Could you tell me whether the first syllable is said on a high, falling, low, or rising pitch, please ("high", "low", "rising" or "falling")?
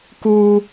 high